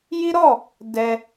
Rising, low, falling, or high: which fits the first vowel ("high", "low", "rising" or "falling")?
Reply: high